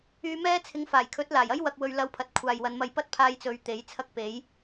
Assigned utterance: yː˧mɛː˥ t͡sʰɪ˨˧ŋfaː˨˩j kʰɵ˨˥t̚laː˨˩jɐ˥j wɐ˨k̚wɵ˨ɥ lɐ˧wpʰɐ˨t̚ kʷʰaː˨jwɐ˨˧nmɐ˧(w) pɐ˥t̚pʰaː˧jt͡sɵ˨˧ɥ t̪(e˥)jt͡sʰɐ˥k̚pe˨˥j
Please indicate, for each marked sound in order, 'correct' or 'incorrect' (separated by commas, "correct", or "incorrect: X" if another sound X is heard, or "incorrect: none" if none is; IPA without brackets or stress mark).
incorrect: j, incorrect: e˨˥